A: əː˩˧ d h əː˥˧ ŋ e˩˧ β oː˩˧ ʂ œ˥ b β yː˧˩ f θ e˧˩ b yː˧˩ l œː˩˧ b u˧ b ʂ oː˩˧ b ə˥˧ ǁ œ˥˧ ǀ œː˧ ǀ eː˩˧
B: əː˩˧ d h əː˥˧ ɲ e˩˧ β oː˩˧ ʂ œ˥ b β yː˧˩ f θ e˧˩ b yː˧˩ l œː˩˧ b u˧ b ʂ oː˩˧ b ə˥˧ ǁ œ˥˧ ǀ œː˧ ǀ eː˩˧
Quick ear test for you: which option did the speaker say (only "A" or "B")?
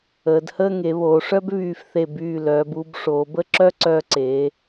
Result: A